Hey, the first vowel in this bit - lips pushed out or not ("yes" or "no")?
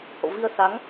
yes